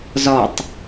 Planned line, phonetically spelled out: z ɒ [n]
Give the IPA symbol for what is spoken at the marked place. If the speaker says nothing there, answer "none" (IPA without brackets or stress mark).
tˤ